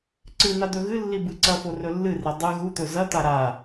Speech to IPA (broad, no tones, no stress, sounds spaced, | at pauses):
ǀ ɨ n̪ a d̪ ɵ ɣ ɨ lː i b ɨ ǀ ɐ f o r ɵ lː ɨ r i dˤ ɨ ɣ u t̪ ɵ z ɐ t̪ a ɾ a